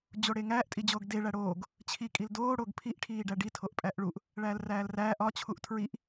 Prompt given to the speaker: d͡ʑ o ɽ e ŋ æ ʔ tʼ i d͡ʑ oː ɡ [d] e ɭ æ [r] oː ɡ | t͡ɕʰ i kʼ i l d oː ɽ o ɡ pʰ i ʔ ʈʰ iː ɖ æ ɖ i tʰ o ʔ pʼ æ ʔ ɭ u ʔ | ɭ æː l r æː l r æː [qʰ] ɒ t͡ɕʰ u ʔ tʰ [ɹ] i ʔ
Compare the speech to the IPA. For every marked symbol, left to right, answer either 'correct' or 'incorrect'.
correct, incorrect, incorrect, correct

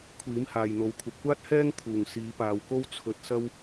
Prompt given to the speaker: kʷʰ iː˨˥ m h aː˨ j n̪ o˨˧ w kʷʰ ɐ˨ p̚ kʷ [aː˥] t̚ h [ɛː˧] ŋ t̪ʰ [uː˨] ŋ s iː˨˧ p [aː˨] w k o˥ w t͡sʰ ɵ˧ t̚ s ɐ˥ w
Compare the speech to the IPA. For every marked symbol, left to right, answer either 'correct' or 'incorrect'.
correct, incorrect, incorrect, correct

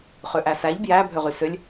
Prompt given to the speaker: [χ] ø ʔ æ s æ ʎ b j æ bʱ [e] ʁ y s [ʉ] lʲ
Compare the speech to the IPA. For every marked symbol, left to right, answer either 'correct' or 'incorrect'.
correct, incorrect, incorrect

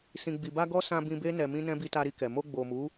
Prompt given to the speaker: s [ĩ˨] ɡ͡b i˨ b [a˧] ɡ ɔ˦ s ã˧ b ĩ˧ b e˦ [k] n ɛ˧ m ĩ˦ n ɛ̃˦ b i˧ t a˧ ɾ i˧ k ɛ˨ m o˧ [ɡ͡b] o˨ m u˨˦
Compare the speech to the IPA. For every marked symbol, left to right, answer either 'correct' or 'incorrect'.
correct, correct, incorrect, correct

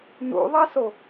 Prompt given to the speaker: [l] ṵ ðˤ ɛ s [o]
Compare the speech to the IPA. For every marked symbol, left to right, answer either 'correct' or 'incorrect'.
incorrect, correct

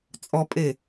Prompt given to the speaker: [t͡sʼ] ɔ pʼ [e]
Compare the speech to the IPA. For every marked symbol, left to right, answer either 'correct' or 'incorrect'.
correct, correct

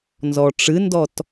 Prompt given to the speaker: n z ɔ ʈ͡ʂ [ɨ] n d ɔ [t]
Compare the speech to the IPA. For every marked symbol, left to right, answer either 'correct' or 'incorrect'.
correct, correct

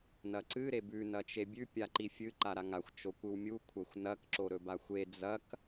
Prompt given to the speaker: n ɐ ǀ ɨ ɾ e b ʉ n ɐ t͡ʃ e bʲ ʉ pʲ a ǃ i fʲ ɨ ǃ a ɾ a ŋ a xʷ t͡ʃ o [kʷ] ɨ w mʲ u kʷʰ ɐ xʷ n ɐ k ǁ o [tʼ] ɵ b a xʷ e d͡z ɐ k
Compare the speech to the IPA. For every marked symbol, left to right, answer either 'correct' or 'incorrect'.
correct, incorrect

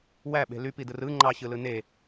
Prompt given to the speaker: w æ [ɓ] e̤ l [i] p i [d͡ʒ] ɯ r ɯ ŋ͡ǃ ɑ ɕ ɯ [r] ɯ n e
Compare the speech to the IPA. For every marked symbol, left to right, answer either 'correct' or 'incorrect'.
correct, incorrect, incorrect, incorrect

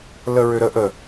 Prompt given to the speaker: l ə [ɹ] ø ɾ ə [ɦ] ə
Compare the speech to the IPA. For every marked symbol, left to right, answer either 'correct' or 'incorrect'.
correct, incorrect

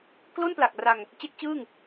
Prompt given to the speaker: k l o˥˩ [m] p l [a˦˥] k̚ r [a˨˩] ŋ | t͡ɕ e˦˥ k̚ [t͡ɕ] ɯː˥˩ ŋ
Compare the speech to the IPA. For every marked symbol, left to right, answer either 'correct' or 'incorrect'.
incorrect, incorrect, incorrect, correct

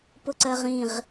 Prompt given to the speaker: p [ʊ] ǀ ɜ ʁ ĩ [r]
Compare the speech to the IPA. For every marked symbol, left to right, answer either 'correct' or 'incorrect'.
correct, incorrect

